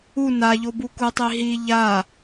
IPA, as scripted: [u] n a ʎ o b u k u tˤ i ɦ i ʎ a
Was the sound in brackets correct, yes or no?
yes